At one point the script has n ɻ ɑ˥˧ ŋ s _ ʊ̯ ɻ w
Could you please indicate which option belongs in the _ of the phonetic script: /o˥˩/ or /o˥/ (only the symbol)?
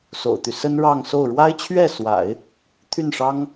o˥˩